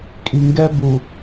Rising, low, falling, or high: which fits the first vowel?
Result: low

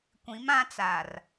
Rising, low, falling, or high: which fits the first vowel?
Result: rising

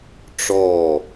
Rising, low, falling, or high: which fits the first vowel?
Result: falling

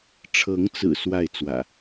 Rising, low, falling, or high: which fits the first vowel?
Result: rising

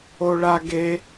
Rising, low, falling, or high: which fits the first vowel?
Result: high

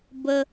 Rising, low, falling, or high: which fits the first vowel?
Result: high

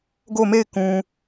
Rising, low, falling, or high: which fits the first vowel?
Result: falling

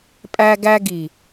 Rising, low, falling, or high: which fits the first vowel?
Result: high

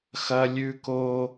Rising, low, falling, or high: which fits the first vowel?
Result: high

